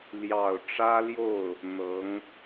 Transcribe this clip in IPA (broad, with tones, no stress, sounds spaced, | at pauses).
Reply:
l j ɑ˨˩ ʊ̯ ʈ͡ʂ ä˥ l j o˥˩ ʊ̯ | n̪ ɤ˧˥ ŋ